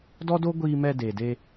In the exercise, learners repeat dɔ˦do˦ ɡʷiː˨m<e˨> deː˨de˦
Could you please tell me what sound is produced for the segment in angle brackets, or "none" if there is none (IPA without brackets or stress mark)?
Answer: ɛ˨